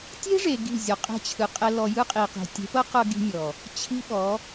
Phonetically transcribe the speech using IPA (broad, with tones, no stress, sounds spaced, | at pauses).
tʲ e̤˦ ʐ e˨ ɡ i̤˦˨ zʲ ɔ˨ qʼ e̤˧ t͡ɕʰ ɯ˨ qʼ ɛ˧ l ɔ˨ j ɯ˦ qʼ i˨ q i̤˨ tʲ e̤˨˦ p ɤ˦ q ɤ˧ ɡ i̤˦ mʲ ɔ˨ | t͡ɕʰ i̤˦ ɓ ɔ˨˦